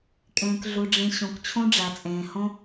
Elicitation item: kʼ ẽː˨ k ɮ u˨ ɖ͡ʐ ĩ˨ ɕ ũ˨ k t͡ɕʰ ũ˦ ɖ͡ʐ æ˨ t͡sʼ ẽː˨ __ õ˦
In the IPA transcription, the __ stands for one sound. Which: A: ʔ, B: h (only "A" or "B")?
B